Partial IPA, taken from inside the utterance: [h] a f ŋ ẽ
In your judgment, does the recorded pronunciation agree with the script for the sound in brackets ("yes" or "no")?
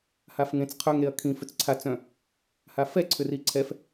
yes